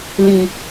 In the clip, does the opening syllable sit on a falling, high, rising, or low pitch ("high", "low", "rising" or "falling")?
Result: low